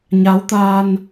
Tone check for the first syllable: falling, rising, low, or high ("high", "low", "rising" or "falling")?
rising